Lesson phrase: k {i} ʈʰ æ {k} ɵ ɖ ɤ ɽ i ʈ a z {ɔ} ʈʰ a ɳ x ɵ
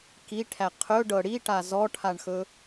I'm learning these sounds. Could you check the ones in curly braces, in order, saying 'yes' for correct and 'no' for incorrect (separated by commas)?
yes, no, yes